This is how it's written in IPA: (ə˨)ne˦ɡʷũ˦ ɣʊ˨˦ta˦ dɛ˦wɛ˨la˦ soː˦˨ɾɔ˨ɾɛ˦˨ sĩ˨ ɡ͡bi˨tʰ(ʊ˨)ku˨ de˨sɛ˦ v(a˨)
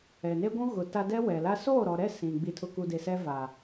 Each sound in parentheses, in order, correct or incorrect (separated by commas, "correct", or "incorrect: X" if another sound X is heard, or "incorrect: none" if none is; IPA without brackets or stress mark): incorrect: ɛ˨, correct, correct